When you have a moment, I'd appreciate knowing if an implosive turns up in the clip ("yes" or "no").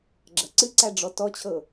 no